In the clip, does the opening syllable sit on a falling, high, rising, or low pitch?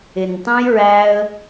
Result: low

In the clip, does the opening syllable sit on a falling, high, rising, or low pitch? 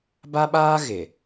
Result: high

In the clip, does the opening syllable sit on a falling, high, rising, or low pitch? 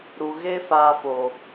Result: low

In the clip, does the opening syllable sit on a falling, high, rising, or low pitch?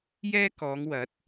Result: high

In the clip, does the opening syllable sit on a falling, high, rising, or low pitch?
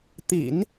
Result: low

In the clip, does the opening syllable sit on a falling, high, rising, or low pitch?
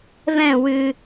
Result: falling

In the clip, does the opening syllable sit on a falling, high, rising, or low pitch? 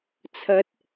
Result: rising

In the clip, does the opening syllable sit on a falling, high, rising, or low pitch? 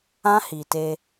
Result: high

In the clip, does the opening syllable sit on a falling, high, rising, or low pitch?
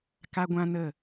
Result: high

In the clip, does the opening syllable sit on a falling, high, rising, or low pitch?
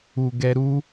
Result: low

